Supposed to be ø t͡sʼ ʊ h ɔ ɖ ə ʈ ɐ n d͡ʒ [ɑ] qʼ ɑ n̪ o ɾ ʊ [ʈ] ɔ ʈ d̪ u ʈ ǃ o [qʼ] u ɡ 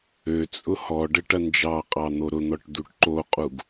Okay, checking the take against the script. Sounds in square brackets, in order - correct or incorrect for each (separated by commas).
correct, incorrect, correct